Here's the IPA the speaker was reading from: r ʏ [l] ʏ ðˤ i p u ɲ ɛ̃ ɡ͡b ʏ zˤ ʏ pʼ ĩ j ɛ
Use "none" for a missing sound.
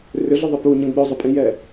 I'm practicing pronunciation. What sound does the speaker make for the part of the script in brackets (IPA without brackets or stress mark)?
ɮ